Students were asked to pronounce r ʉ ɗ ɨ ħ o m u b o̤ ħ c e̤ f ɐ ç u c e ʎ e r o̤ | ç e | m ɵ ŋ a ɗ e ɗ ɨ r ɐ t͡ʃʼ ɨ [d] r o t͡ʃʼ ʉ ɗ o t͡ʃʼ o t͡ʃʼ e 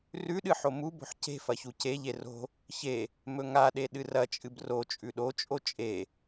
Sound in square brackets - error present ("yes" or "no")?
yes